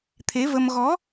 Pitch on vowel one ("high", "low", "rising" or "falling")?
rising